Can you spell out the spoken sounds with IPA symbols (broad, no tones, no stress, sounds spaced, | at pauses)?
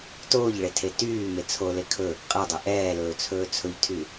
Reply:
t oː ʎ ɭ e tʰ e t yː m e t͡sʰ o l e kʰ ɵ | qʼ ɛ dˤ ɵ ʔ ɛː l ɵː t͡sʰ ɵː t͡sʰ ɵ ʎ tʰ y